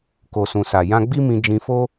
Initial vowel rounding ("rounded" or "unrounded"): rounded